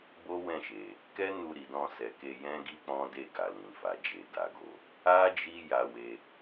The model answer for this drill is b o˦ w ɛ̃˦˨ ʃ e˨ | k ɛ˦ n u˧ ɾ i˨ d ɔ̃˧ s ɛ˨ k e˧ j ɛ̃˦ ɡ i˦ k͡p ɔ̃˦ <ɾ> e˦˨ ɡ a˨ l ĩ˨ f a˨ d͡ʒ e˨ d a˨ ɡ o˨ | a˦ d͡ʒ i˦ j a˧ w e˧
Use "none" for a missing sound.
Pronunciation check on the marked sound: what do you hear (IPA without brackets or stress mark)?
d